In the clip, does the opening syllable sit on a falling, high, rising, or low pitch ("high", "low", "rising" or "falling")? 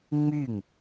falling